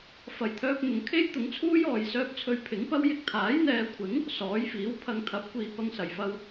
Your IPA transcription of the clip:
fɐ˨jt̪ʰœː˧p̚n̪ʊ˨˧ŋ kʰe˥jt̪ʊ˨˥ŋt͡sʰuː˥jɔː˨j sœː˧p̚t͡sʰɵ˧ɥpʰɪ˨˥ŋpɐ˥w jɪ˧k̚t̪ʰaː˨˥jn̪ɛː˨˧kʷʰɪ˨˥ŋ | sɔː˨˥jfiː˨˥wpʰɐ˧ŋ t̪ʰɐ˨˥p̚kʷiː˨˧ pɐ˧ŋsɐ˨˩jfɐ˧w

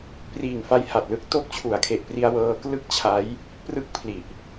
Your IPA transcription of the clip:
priː˨˩ŋfa˧j ha˨˩t̚lɯ˦˥k̚ to˦˥k̚t͡ɕʰu˩˦a̯kʰe˨˩ʔpri˧a̯ wɤː˧klɯ˥˩k̚t͡ɕʰa˦˥j | prɯ˥˩k̚pʰli˨˩ʔ

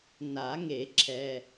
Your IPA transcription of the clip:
na˨˩˦ŋe˨˩˦ǁʰɛ˨

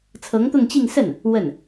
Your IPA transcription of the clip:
t͡sʰɤ˧˥ŋt̪ʊ˥˧ŋt͡ɕi˥˧ŋ sə˥˩n | wə˥˩n

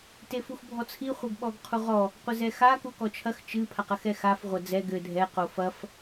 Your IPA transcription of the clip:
tefuxbʱɔt͡sʰi χʷɛɡɓɔɡqʰuʁɔ | qʷɘzɛxa kukɔt͡ʃʰɐx t͡ʃɨ pʰaqɐxɛxaf ʁʷɐd͡zɛ ɡɘ dʱɛ qofɐf

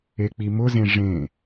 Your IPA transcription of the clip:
ek͡pimʊzẽ ʐẽ

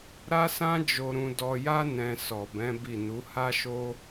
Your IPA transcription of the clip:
ɾa˦sã˦ d͡ʒo˧ɾũ˧ dɔ˧ja˦ nɛ̃˧ sɔ˨bɛ̃˨˦ bi˦˨ nu˨˦ha˦ʃo˦

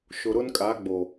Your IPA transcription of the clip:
ʃʊ˨ɾʊ˦nkʼa˨˦ɡ͡bo˨

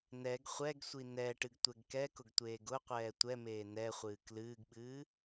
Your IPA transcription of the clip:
nɛɡ χʷɛɡsʷi nɛ ʈɨɡtʷɛɡkɛkʊɡ tʷeːɡʊqʷɛː tʷɛmeː nɛχʷɨː klɨːɡɓɨː

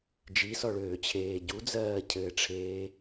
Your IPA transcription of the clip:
d͡ʒisɔɭøːt͡ɕʰeː ɟud͡zɜːcʰɘːʈ͡ʂʰeː

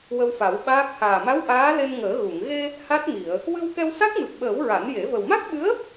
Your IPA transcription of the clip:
wə˧wfa˨˩˦wɓaː˦˥k̚ haː˨˩ma˧˥w ʔaː˧˥le˧nŋəː˨˩˦ ɣu˨˩˨ŋ ɣe˧ | ha˦˥t̚mi˨˩˨ə̯ | wɨ˧wkɛ˧w sa˦˥k̚mɨ˨˩p̚ɓəː˨˩˦w ɹa˨˩˦nje˨˩˦ və˨˩wma˦˥k̚ɓɨ˧˥ə̯

